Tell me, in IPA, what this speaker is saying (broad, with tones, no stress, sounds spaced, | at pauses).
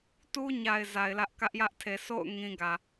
t u˦ ɲ a˨ ɪ̯ z a˨ ɪ̯ l ä˦ ʔ k ä˦ ʔ j ä˦ ʔ tʰ e˨ sʰ o̰˦˨ ʊ̯ ŋ ĩ˦ ɡ ä˨